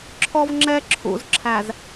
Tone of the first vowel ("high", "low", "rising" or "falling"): high